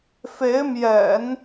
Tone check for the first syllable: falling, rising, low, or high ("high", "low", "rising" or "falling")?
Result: rising